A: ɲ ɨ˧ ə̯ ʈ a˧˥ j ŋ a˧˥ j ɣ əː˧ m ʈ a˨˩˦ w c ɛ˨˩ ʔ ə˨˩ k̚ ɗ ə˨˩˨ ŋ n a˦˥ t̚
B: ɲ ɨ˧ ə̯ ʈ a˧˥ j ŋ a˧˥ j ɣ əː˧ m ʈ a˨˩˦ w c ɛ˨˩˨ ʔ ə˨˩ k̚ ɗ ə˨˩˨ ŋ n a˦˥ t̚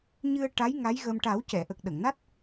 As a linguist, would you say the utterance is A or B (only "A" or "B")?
B